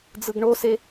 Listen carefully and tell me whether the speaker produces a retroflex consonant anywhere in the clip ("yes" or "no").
yes